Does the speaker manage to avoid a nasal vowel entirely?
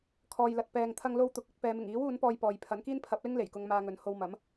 yes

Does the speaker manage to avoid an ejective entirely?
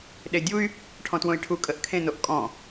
no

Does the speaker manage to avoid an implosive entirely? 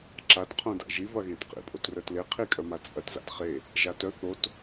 yes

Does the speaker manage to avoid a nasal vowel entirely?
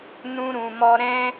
no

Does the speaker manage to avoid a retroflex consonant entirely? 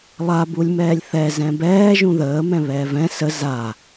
yes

